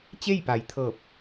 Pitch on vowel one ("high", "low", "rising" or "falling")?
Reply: falling